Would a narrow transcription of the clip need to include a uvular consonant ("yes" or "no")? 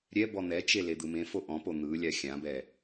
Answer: no